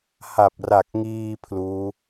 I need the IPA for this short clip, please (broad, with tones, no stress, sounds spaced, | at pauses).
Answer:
h a˨˩ p̚ r a˨˩ k̚ ŋ iː˧ pʰ l uː˦˥